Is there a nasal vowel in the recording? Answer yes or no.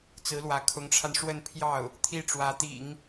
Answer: no